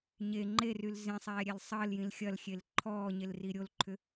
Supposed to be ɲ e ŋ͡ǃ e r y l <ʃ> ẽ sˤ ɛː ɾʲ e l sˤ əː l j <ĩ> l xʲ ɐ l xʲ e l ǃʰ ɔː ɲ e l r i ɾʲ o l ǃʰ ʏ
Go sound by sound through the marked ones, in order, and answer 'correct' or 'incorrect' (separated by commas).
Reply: incorrect, correct